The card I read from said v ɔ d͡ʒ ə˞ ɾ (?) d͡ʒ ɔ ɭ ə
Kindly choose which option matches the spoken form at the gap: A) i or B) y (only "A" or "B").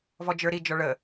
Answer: A